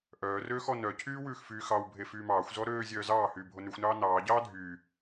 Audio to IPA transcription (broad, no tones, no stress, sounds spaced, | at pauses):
ʔ œː r øː x ɔ n œ cʰ yː w ʉː x f yː x ɑ w bʱ e f yː m ɑː xʷ z ɔ ɾ øː zʲ œː z ɑː h yː bʱ o n ʉ xʷ n ɑː n ɑː ɟ ɑː dʱ yː